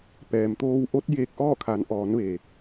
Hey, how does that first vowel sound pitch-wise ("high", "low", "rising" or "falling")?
low